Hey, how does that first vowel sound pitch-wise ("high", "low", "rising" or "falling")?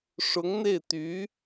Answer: rising